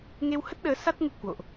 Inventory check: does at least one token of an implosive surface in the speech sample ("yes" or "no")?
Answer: yes